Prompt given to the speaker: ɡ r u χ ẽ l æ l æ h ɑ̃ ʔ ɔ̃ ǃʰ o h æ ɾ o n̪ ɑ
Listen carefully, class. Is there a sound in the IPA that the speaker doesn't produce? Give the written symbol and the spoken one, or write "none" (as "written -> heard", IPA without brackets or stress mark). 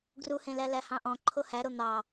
χ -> h